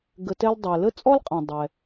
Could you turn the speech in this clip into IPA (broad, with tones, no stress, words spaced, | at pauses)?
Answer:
ɡə˨tɛ˦l dˤɛ˩lə˥t͡sʼɔ˥l qʼɐ̃˩ dˤɛ˩